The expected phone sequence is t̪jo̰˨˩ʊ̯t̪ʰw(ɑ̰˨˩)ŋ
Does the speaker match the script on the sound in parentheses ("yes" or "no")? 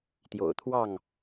no